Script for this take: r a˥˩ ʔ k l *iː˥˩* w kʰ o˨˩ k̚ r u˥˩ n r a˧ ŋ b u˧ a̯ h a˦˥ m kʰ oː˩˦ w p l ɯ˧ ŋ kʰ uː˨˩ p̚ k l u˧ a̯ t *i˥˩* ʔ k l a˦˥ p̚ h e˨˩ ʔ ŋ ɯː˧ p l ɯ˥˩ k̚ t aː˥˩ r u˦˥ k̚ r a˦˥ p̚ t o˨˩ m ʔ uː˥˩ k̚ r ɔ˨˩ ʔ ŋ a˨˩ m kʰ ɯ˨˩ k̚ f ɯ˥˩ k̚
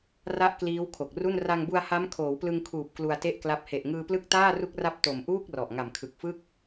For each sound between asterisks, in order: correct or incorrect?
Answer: incorrect: iː˦˥, incorrect: e˥˩

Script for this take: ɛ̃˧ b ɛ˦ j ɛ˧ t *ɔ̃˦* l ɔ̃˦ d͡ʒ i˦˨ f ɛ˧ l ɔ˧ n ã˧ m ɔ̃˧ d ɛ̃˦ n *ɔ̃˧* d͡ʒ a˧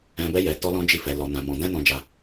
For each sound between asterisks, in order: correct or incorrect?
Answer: incorrect: ɔ˦, correct

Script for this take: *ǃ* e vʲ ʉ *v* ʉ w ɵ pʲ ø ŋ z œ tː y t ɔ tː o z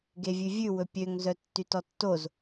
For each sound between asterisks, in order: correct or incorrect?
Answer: incorrect: ɡ, incorrect: vʲ

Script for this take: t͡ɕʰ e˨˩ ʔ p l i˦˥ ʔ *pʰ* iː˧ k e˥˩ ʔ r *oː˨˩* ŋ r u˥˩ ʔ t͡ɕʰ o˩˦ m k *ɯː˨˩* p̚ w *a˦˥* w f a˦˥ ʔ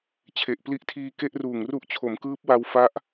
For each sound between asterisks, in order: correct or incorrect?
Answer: incorrect: tʰ, incorrect: uː˨˩, incorrect: ɯː˦˥, incorrect: a˧

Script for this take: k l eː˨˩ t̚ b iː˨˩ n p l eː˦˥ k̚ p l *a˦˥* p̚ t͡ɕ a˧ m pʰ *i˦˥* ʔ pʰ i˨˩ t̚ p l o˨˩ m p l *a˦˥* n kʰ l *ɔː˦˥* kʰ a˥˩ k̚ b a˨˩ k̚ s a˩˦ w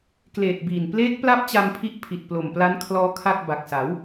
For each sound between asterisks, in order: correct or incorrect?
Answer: incorrect: a˥˩, correct, correct, correct

